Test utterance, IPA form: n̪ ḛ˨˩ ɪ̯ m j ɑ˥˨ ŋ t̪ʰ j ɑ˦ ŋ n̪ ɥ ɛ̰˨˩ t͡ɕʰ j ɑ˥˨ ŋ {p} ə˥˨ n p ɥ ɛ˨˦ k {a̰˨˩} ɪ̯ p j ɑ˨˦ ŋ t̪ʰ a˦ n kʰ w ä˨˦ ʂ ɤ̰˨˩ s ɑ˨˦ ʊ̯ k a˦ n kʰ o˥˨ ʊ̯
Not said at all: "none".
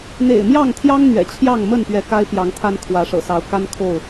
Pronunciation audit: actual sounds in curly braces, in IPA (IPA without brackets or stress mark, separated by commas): m, a˦